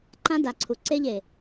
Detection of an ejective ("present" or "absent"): absent